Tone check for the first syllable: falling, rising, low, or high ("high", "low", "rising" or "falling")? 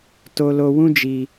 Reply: high